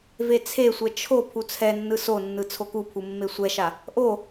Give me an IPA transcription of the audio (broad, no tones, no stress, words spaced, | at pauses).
vet͡sʰesʷɛ t͡ʃʰo pʰut͡sʰɛnːɯ sonːɯ t͡sʰokupʰu mːesʷɛʃa | ʔo